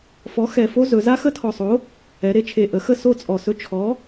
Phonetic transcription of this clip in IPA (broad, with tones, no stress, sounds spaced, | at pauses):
f ɔ˨˥ x ɛ˨˩ f o˦˥ z ɵ˩˧ z a˦˥ x ə˦˥ tʰ ɔ˨˩ sˤ o˨˥ | ɛ˩˧ ɾ e˩˧ t͡ʃʰ e˨˩ ʔ ə˩˧ x ə˥˧ s o˥˧ t͡sʼ ɔ˨˩ s ɵ˦˥ t͡ʃʰ ɔ˨˥